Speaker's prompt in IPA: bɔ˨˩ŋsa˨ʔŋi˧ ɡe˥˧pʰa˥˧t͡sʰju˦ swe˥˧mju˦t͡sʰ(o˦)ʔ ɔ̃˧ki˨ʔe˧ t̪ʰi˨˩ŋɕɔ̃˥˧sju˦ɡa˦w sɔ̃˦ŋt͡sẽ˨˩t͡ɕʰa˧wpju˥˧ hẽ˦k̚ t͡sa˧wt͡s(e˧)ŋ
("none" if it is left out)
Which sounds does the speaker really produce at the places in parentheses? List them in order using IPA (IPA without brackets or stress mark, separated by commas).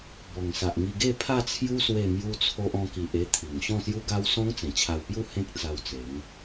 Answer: o˦, e˨˦